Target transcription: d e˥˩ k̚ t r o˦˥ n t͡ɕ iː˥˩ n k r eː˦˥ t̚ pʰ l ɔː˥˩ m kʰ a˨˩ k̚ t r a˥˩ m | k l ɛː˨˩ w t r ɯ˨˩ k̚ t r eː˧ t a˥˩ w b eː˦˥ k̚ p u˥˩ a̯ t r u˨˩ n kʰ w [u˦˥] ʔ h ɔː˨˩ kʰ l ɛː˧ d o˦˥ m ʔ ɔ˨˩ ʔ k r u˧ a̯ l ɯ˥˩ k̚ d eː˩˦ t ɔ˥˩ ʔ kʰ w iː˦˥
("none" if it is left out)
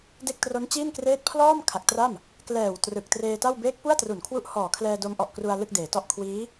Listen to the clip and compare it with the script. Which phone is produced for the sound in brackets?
u˦˥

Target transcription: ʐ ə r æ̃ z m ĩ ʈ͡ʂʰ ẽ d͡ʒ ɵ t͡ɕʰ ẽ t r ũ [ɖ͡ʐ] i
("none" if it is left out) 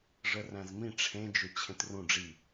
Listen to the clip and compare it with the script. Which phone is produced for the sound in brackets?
ɖ͡ʐ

